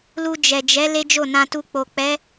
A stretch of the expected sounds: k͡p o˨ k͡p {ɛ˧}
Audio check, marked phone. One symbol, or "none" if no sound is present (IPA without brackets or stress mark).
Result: ɛ˨˦